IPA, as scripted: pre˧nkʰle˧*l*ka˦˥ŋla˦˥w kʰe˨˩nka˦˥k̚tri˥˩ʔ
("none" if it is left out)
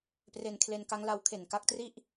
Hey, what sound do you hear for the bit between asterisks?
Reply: n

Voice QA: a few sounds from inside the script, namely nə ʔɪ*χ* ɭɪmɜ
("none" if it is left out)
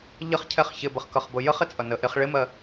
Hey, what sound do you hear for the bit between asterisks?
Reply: χ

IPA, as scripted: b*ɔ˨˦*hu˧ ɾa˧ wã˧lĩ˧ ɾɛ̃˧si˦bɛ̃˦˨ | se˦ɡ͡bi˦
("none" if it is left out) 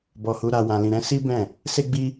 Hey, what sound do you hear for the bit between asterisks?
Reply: ɔ˧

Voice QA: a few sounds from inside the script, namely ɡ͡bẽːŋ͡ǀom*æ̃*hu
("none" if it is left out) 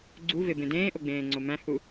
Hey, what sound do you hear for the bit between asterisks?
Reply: æ̃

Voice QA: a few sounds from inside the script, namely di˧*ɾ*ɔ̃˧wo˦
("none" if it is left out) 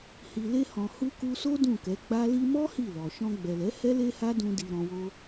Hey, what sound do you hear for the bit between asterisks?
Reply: ɾ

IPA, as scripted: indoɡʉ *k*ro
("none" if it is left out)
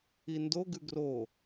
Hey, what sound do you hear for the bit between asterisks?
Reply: ɡ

